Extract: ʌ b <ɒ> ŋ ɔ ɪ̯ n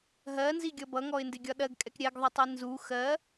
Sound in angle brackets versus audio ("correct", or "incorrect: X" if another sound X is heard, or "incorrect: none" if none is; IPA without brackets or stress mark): incorrect: ʌ